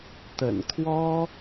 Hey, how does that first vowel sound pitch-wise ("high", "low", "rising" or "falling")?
low